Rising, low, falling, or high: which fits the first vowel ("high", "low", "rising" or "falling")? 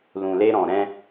low